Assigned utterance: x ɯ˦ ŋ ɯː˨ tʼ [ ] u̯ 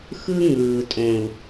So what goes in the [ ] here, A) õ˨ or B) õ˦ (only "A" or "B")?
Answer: A